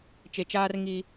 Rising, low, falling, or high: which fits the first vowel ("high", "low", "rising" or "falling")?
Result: low